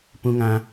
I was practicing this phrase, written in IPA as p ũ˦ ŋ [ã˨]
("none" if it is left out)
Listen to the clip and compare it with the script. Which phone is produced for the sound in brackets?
ã˦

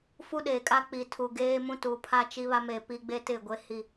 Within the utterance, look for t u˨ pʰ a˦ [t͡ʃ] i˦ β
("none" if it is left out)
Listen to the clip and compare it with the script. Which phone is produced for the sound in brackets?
t͡ʃ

